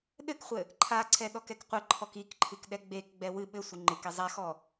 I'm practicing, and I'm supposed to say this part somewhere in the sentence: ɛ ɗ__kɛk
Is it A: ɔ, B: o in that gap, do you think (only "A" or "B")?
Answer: A